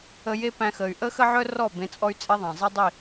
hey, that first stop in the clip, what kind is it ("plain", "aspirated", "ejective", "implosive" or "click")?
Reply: plain